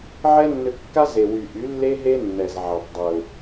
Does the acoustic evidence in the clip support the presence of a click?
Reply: no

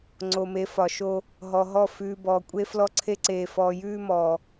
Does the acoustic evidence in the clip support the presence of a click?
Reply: yes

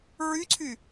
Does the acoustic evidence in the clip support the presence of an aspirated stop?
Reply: yes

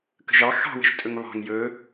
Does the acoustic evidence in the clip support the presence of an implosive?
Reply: no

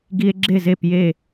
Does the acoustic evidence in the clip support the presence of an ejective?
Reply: no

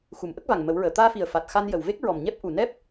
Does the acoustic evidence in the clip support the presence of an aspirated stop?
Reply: no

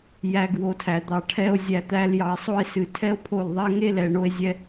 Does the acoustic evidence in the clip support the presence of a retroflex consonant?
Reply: yes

